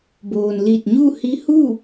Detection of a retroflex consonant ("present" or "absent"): absent